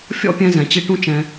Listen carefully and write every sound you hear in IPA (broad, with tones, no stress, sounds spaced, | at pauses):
fʲ ɔ̰˦ pʲ ɛ̃˧ z ɛ̃˨ t͡ɕ i˧ ʈ ũ˦ t͡ʃ ɛ̃˧